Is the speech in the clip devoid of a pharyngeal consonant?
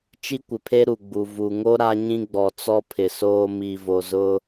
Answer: yes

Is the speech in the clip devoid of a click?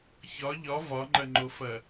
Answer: no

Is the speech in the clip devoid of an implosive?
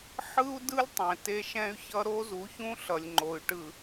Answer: yes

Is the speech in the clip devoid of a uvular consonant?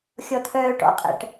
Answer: no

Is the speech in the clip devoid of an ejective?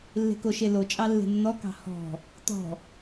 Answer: no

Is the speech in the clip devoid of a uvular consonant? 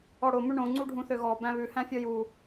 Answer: yes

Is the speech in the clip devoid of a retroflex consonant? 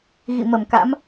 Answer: yes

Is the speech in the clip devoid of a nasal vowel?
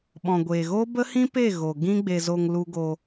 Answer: no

